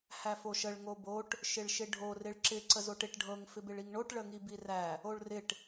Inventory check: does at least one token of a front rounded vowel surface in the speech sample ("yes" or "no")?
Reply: no